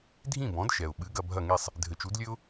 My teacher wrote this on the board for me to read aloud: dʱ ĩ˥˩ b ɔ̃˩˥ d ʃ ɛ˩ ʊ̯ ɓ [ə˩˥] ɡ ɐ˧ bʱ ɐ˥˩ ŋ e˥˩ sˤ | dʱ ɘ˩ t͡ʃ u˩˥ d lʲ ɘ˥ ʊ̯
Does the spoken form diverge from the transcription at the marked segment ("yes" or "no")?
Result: yes